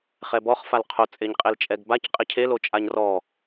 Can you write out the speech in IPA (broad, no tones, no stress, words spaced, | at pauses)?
χɛbɔχ falqʰo t͡sʼeɲqʼelt͡ʃʼɛɡbac qʼɪcʰelot͡ʃʼaɲ rɔ